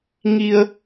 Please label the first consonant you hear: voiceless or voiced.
voiced